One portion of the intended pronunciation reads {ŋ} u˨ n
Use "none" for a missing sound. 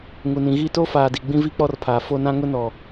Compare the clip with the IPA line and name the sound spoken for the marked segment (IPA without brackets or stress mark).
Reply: ŋ